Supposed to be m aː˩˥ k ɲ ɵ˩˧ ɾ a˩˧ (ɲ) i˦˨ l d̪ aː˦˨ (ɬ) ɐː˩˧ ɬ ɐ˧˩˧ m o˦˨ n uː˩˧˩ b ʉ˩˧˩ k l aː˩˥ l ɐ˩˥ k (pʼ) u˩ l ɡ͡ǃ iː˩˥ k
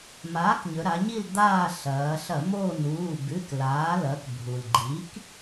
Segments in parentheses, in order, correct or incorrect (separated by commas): correct, correct, incorrect